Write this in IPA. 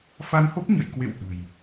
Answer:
f a˧ n h o˦˥ p̚ ɲ ə̰˧˨ j k w ḛ˧˨ w ʔ ə̤˨˩ j

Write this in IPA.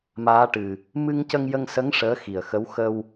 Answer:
m aː˧˥ ʈ ɨ˨˩ | m ɨ˧ ŋ c ə˧ ŋ j ə˧ ŋ s ə˧˥ ŋ ʂ əː˧˥ x i˨˩ ə̯ x ə˧˥ w x ə˧ w

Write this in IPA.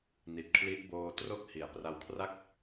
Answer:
n i˨˩ t̚ kʰ l i˦˥ ʔ b oː˧ t r o˦˥ k̚ h i˩˦ a̯ p r a˧ w kʰ r a˥˩ k̚

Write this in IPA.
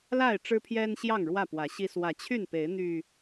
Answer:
l a˥˨ ɪ̯ ʈ͡ʂ ɻ̩˦ pʰ j ɛ˦ n ɕ j ɑ˥˨ ŋ ɻ w ä˥˨ p w ä˨˦ ɕ i˦ s w ä˨˦ t͡ɕʰ y˥˨ n p e˨˦ ɪ̯ n̪ y˨˩

